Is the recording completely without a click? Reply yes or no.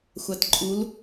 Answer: no